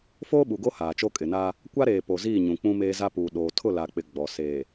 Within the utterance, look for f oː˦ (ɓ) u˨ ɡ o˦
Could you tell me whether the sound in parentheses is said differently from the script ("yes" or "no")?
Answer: no